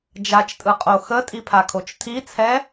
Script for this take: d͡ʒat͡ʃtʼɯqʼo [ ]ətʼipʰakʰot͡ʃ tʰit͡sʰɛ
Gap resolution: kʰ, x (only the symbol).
x